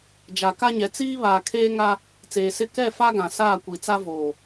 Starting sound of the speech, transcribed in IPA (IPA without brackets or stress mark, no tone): d͡ʒ